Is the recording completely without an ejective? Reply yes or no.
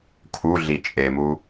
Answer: no